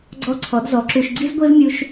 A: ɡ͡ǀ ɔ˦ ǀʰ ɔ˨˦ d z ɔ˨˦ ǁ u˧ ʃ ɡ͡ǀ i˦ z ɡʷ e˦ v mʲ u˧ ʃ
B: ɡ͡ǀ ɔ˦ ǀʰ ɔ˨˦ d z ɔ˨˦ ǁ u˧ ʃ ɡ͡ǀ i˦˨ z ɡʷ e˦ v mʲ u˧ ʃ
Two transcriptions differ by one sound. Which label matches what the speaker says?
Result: A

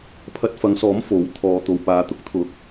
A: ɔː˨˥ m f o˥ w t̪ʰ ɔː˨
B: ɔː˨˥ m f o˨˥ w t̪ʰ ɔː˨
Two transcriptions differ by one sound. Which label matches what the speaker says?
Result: B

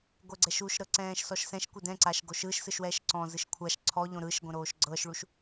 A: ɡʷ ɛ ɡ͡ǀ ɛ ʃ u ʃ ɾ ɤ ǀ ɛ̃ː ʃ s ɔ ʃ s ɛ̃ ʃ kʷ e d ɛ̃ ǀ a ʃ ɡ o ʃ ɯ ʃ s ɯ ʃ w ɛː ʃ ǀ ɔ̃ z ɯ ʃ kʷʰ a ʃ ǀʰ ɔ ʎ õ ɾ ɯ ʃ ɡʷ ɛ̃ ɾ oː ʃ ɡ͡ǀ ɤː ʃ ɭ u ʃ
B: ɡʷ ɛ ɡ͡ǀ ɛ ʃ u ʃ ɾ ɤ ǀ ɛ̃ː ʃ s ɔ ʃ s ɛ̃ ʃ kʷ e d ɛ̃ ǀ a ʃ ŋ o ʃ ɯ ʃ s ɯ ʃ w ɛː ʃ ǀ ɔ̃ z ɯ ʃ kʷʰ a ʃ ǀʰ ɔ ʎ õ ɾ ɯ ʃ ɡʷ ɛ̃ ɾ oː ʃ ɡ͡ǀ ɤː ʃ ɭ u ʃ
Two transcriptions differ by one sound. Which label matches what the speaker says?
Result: A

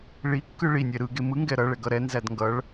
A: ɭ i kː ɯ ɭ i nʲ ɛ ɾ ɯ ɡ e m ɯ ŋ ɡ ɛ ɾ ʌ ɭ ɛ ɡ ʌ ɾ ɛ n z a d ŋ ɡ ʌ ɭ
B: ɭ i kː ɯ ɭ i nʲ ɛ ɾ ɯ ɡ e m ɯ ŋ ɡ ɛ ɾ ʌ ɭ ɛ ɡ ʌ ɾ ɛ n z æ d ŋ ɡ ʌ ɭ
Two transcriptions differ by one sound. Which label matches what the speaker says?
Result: B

